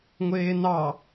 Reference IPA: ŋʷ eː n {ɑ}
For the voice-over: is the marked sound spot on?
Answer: yes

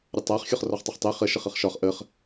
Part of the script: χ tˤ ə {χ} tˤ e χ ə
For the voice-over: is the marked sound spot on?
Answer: yes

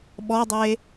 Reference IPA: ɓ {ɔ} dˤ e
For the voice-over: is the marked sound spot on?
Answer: yes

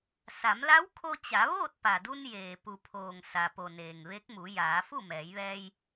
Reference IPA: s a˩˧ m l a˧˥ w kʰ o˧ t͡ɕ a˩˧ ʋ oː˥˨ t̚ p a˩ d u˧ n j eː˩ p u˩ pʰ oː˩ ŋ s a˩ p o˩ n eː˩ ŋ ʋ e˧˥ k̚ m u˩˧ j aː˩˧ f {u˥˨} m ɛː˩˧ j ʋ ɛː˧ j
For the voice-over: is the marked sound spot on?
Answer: yes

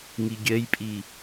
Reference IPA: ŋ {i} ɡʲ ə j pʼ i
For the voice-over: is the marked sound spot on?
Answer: yes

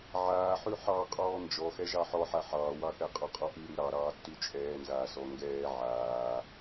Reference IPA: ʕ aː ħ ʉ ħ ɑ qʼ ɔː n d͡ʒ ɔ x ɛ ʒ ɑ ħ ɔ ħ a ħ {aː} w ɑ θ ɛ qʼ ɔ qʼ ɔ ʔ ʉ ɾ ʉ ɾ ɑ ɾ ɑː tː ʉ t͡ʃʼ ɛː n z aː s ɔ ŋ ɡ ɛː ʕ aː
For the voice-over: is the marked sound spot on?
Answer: no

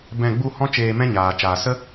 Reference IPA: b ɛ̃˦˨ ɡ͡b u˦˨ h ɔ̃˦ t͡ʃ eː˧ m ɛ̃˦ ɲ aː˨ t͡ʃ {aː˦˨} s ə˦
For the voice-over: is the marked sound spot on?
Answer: no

